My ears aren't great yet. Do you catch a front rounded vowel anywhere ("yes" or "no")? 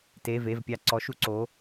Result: no